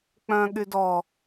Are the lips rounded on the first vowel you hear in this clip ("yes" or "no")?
yes